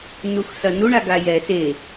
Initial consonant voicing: voiced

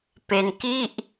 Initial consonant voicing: voiceless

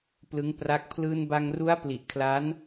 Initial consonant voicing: voiceless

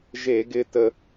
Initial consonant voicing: voiced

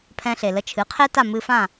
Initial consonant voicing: voiceless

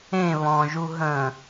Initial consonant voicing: voiced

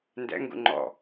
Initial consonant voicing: voiced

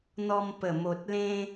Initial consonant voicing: voiced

